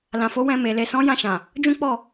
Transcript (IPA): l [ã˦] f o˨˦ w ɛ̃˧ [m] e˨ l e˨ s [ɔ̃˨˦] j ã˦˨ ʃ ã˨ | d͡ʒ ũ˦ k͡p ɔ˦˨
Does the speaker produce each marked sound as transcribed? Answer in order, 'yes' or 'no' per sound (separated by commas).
no, yes, yes